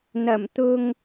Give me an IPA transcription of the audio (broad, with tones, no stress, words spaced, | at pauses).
n̪ɐ˨˩mt̪ʊ˧ŋ